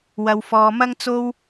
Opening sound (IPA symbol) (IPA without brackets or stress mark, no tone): w